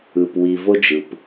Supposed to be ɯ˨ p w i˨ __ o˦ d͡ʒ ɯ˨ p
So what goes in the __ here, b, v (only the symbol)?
v